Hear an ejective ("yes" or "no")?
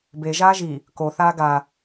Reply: no